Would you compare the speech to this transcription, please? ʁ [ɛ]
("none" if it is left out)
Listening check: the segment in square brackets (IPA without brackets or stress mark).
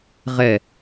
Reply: ɛ